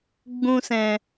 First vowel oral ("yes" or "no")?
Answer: no